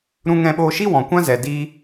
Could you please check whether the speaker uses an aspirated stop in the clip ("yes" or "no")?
no